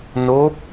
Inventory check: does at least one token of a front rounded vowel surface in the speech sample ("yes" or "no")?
no